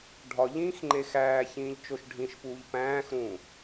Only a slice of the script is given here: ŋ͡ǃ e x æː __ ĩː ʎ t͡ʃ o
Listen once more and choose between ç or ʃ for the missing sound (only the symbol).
ç